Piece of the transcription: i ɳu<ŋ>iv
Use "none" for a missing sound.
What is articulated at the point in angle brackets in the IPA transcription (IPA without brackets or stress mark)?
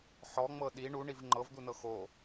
ɳ